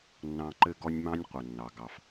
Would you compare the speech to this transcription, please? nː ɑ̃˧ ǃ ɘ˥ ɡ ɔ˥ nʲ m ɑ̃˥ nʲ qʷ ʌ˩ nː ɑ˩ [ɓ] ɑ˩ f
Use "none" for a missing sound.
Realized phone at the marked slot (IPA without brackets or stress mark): ɡ